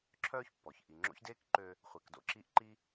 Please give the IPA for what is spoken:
ǁʰ œː˦ ç pː ɔ˩ ç ʔ i˨ ŋ͡ǁ o̰˥ ç d eː˥ k ǃ ø˦ | χʷ e˨ k d o̰˦ ǁ i˦ ʔ ǃ i˥

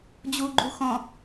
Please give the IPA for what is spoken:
d͡ʑ u ɡ͡ǃ u x ɔ̃

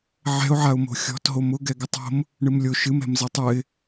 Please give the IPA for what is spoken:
ʕ ɛ̤ ʊ̯ ʕ a ʊ̯ m o̤ xʲ ɔ̤ t ɦ o m ʊ ɡ ɛ ɡ ʊ tˤ o̤ m | ɳ ɨ m lʲ o ʃ ɨ m ɛ̤ m z ɨ tˤ ɨ ɪ̯

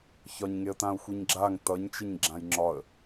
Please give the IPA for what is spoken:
ç ɒ ɲ ŋ e ə̯ t ã ʊ̯ xʷ i ɲ ɡ͡ǁ a ŋ t ʌ ɲ t͡ʃ e ɲ ɡ͡ǁ ã j ŋ͡ǁ ɒ ə̯

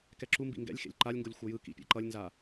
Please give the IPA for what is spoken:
k ɛ ǁ u m b ḭ ŋ ɡ ɛ̰ lʲ x ḛ lʲ ǃ a lʲ ŋ ɡ o lʲ xʷ ʌ j ɯ k ḭ pʲ ɛ̰ ǃ ʌ lʲ n z a

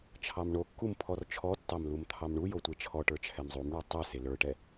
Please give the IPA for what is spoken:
t͡ʃʰ ɑ m ɳ o kː u m pʰ ɔ r t͡ʃʰ ɔ tː ɑ m l u m t̪ʰ ɑ m ɳ u j o tʷ e t͡ʃʰ ɔ ʈ ə˞ t͡ʃʰ ɛ m zˤ u m ɳ ə˞ tˤ u s e l ə˞ ʈ ɛ

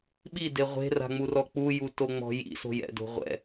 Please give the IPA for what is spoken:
ɓ i d e ʁʷ e̤ r a̤ ŋ͡m u r ɔ k͡p u j u t o ŋ͡m ɔ̤ j ḭ s o̤ j ɛ̰ d o̤ ʁʷ ɛ̰

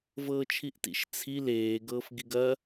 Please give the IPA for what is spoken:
v ɤː t͡ʃʰ i ʔ t ḭ ʃ t͡sʰ i l eː ɡ ɤː f ɡ i ɡ ɐ

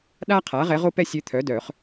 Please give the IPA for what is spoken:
ɗ a˥ qʰ a˩˥ ʁ ɛ˧˥ ʁ o˥ p ɛ˥ sʲ ø˧˥ t̪ʰ œ˩˥ d œ˨˩˦ χ

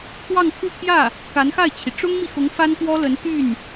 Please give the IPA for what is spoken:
t̪ w ɑ˥˧ ŋ kʰ u˥˧ pʰ j ä˥˩ | k a˧˥ n x a˥˩ ɪ̯ t͡ɕʰ i˩ ʈ͡ʂ ʊ˥ ŋ m i˨ x ʊ˧˥ ŋ f a˥ n k w ɔ˥ l ə˧˥ n t̪ y˥˩ n

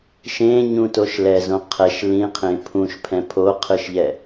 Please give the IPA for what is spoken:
ʃ ẽ ɲ ũ t o ʃ l ɛ z õ qʰ ɛ ʃ l ĩ qʰ ẽ pʰ ũ ʃ pʰ ɛ̃ pʰ o qʰ ɯ ʃ ʎ ɛ

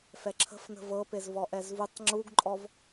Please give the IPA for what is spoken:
f ɛ ǁʰ ə̤ f n ə̤ v ɤ p e z v ɔ ʔ ɛ z v u tˤ ŋ͡ǁ u ɡ ǃʼ ɔ v

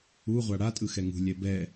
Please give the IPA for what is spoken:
u ʁʷ a ɽ a tʼ ɯ x ɛ ŋ ṳ lʲ ɛ b ɛ

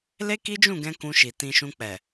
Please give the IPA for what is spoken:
l e˦ k i˦ d͡ʒ ũ˦˨ ɡ ɛ̃˧ k ũ˧ ʃ i˨ t ĩ˧ ʃ ũ˧ k͡p ɛ˨

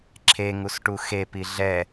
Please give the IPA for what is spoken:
ǁʰ e ŋ u s ʈ u x e p i ɮ ɛ

